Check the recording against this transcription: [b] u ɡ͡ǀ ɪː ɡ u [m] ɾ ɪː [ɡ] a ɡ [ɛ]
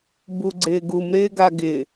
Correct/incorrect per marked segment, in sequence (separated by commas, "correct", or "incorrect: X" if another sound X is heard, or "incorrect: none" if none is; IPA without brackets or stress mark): correct, correct, correct, incorrect: ɪ